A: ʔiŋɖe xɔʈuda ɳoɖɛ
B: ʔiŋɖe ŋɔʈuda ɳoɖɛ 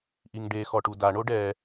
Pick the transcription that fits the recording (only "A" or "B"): A